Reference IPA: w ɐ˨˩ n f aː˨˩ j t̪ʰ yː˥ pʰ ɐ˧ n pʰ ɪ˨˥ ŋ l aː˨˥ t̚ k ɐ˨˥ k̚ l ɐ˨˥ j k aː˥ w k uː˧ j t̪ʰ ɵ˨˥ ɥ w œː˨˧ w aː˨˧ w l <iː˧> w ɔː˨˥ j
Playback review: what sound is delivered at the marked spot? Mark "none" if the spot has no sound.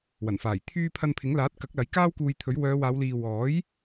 iː˨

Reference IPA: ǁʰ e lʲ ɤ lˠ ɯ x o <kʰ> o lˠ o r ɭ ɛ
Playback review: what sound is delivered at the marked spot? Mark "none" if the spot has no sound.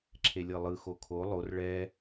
kʰ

